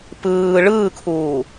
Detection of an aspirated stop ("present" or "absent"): present